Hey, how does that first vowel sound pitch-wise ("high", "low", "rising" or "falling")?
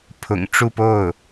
low